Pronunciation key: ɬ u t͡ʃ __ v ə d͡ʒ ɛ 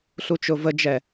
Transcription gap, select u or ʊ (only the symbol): ʊ